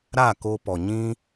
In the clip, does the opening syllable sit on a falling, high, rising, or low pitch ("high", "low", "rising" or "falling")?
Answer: falling